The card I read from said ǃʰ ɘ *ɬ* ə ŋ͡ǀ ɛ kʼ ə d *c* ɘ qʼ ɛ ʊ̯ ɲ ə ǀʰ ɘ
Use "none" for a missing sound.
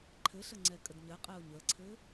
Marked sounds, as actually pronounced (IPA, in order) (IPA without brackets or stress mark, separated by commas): ɬ, ɲ